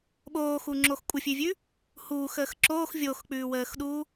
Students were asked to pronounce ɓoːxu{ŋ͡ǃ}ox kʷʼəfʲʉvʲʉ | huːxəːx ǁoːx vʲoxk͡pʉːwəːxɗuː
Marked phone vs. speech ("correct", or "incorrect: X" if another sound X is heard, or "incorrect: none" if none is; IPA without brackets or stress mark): incorrect: ŋ͡ǁ